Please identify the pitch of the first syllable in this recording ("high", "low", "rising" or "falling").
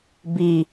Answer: low